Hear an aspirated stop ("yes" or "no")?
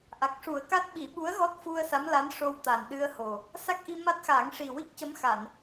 no